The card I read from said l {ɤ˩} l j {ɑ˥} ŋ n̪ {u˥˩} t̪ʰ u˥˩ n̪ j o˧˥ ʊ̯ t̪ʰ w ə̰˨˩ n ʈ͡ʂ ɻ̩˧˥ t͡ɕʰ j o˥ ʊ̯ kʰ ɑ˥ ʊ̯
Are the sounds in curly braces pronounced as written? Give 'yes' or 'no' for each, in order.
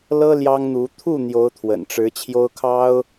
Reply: no, yes, no

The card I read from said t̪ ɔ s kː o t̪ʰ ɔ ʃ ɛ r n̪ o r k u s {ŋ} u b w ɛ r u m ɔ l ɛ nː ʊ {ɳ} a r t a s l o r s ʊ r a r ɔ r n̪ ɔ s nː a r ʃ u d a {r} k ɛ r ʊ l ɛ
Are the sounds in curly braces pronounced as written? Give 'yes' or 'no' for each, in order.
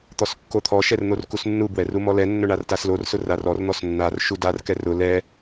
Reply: no, yes, yes

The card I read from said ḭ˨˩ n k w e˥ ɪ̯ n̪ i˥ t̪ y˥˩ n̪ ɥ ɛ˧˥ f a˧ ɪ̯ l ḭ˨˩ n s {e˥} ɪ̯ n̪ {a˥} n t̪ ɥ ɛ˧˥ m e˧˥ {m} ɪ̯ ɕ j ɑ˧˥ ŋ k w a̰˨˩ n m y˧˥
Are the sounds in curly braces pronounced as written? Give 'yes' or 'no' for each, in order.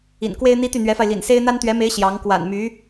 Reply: yes, yes, no

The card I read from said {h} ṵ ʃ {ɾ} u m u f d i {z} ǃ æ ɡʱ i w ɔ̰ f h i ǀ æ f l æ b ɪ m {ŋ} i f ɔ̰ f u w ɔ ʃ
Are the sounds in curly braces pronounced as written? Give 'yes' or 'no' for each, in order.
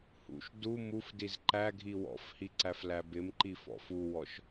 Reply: yes, no, yes, no

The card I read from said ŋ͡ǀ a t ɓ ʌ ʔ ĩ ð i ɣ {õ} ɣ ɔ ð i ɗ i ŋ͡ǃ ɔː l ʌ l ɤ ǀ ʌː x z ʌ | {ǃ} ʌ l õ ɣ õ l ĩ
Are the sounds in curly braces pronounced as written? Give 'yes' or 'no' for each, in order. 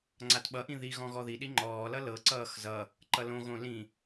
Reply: no, yes

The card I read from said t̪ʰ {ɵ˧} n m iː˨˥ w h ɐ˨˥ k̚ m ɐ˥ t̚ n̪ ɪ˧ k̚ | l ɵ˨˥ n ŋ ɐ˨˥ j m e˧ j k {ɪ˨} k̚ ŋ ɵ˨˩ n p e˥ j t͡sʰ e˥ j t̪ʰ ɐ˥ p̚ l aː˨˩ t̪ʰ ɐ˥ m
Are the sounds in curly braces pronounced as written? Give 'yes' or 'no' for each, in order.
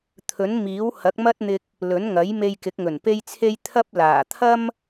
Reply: no, no

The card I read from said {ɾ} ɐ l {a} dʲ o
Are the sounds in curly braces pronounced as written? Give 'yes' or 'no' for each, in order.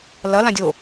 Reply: no, no

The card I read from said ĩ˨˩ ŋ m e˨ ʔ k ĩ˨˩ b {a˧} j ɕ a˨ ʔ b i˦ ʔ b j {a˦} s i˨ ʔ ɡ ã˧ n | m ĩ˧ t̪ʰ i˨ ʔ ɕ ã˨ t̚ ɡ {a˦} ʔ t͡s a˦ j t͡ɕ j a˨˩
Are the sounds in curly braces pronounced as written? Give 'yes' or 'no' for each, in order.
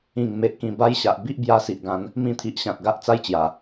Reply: yes, no, yes

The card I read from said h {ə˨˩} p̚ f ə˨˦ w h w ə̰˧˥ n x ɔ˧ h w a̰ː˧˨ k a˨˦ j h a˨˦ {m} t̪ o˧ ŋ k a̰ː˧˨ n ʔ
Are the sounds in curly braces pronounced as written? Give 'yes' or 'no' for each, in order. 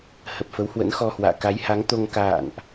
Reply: yes, no

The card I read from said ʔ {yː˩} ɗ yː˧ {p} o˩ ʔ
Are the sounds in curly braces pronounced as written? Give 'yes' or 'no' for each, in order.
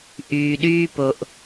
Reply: yes, yes

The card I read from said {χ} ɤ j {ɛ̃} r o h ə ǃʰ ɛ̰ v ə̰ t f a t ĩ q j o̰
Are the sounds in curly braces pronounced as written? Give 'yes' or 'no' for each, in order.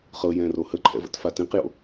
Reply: yes, yes

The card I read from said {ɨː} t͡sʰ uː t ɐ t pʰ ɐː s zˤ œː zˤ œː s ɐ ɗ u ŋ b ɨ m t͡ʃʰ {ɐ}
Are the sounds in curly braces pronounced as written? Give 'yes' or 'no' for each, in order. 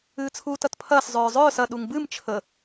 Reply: yes, no

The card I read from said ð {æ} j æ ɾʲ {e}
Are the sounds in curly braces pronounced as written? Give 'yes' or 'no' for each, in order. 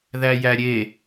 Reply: yes, yes

